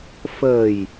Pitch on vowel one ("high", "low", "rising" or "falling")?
low